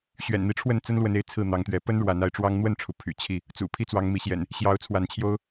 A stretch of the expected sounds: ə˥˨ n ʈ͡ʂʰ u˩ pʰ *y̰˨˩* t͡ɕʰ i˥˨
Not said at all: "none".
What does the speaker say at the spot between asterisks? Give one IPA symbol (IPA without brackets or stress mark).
y̰˨˩